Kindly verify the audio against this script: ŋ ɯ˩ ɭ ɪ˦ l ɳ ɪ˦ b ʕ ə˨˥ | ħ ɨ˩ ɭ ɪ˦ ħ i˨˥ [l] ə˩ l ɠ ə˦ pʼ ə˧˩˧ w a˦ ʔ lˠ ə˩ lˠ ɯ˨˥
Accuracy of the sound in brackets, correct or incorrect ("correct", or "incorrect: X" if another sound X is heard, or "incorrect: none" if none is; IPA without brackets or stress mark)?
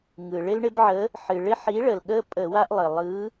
incorrect: ɭ